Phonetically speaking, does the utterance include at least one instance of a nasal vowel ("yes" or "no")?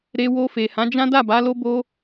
yes